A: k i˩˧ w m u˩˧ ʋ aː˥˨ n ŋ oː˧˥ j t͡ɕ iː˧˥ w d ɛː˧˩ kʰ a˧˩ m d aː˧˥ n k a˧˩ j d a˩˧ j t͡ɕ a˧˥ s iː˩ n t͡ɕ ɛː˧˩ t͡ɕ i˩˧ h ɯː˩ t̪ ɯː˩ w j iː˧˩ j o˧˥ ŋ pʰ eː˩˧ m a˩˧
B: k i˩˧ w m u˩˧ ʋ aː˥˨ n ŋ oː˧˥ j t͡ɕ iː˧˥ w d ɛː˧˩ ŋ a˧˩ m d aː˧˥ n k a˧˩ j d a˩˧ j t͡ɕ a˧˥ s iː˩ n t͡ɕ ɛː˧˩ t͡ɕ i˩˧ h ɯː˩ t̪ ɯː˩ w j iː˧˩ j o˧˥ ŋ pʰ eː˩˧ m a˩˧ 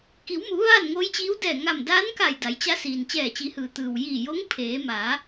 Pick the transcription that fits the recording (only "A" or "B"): B